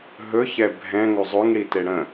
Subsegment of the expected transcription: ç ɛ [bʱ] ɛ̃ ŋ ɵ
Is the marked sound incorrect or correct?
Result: correct